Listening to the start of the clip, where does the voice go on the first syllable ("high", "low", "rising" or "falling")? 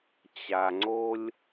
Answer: low